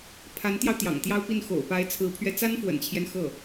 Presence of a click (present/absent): absent